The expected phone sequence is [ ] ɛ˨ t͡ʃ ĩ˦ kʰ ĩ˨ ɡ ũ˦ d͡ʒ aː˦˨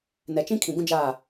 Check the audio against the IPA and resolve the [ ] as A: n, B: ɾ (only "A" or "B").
A